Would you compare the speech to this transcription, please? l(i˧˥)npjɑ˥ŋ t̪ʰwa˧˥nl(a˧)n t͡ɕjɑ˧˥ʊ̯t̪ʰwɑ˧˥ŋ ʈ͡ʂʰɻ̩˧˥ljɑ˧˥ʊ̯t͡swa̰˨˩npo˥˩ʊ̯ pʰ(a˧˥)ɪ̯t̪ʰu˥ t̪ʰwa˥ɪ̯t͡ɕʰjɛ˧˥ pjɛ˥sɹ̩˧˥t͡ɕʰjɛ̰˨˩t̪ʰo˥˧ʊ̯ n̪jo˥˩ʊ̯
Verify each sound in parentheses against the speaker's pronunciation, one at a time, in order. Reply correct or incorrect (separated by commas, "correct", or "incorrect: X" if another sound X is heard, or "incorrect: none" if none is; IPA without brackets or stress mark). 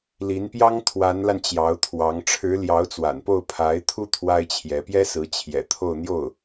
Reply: correct, correct, correct